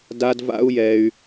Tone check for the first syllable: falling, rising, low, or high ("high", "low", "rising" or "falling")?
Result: high